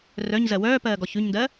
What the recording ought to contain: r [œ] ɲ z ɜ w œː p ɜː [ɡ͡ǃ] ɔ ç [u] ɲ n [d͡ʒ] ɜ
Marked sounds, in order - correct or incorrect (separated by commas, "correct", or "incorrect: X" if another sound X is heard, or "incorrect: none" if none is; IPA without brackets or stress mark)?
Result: correct, incorrect: ɡ, incorrect: ʉ, incorrect: d